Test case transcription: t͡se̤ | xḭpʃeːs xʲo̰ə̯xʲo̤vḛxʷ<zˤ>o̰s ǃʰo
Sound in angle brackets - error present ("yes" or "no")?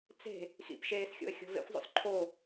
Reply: no